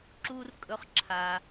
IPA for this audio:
ǁ u˦ r kʼ ɵ˦ χ ǁʰ a˧

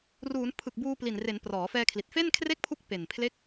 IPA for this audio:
r uː˩˦ n pʰ ɯ˨˩ k̚ b uː˧ p l i˨˩ n r e˩˦ n p r ɔː˩˦ f ɛː˧ kʰ l i˨˩ t̚ f e˥˩ n kʰ r e˥˩ k̚ pʰ u˦˥ k̚ p e˨˩ n pʰ l e˦˥ k̚

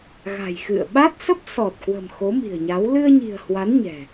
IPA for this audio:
ɣ a̤˨˩ j x ɨ̰˧˨ ə̯ ɓ a˦˥ t̚ s ə˦˥ p̚ s ɔ˨˩ t̚ k w ə̤˨˩ m x o˨˦ m i̤˨˩ ə̯ ɲ a˨˦ w l ɨ˧ ə̯ ɲ i̤˨˩ ə̯ h w a˨˦ n ɲ ɛ̤˨˩

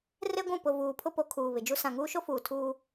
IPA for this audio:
r e˦ ɡʷ ũ˦˨ p ʊ˨ v uː˨ pʰ ʊ˦ p o˨˦ kʰ uː˨ β ɪ˨ d͡ʒ u˦ s ã˨ ŋ uː˦ ʃ o˦ f uː˨ tʰ uː˦

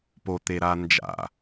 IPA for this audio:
p o t̪ e ɾ a n d͡ʒ a̰

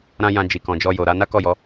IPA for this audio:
ɾ ã˦ j ã˧ d͡ʒ i˨ k ɔ̃˨ d͡ʒ ɔ˧ j o˨ ɾ a˨˦ n a˦ k ɔ˦˨ j ɔ˨˦

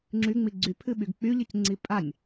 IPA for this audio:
ŋ͡ǁ y ŋ͡m i ɡ͡ǀ y pʰ ɨ ɓ y ɡ k͡p y ʎ ɨ c ŋ͡ǀ i pʼ a nʲ

